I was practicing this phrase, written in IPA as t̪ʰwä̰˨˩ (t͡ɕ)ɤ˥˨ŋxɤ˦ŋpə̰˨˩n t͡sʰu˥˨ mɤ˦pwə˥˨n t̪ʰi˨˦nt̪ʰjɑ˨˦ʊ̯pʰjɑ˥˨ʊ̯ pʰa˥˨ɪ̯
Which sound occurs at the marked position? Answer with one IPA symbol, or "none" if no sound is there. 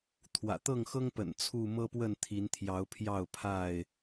t̪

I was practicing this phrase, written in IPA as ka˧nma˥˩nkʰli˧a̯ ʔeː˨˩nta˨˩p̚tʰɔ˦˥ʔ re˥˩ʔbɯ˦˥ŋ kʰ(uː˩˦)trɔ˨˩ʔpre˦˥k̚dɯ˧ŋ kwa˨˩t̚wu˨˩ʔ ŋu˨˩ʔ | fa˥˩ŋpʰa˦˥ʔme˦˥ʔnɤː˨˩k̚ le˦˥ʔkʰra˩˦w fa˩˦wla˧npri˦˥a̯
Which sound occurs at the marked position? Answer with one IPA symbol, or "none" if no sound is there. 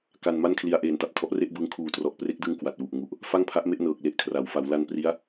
uː˨˩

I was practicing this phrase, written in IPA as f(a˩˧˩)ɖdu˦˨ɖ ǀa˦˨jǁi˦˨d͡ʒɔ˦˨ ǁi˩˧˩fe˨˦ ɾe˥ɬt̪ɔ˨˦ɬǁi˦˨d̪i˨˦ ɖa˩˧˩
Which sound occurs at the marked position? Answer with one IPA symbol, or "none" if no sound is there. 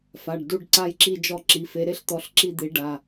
a˩˧˩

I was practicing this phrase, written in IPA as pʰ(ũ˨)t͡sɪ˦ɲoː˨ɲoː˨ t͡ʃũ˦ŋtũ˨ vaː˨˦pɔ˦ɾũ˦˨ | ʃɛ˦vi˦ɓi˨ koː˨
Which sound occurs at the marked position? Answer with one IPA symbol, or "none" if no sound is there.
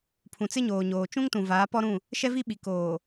ũ˨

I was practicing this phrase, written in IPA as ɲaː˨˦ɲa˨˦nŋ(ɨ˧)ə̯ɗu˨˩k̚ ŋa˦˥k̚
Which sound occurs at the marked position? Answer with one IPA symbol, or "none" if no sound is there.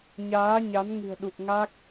ɨ̤˨˩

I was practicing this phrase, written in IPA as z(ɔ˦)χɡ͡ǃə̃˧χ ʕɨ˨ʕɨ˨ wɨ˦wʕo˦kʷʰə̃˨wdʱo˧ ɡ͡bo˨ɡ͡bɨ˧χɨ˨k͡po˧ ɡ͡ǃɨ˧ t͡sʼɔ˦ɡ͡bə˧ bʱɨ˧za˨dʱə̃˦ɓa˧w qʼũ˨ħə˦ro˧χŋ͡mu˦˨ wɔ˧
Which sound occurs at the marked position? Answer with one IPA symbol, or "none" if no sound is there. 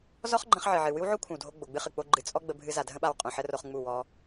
ɔ˦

